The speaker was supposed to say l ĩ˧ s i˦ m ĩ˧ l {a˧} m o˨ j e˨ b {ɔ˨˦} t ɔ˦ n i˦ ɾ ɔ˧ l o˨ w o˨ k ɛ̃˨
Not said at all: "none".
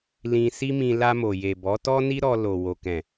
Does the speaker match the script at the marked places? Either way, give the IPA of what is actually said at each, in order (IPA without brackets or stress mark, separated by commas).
a˧, ɔ˨˦